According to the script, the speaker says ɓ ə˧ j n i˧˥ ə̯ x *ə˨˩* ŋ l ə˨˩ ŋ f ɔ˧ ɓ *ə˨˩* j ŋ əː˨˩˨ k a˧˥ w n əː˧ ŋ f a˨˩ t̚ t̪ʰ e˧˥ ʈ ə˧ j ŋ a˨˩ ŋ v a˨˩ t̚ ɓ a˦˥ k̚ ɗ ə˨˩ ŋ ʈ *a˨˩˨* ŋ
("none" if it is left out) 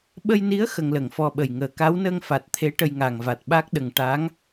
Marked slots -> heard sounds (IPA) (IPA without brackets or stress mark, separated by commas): ə˧, ə˨˩, a˧˥